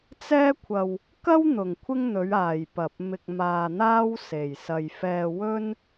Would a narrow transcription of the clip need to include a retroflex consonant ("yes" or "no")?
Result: no